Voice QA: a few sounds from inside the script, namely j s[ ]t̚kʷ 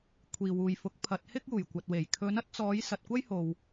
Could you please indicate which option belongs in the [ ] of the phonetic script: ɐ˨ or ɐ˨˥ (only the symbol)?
ɐ˨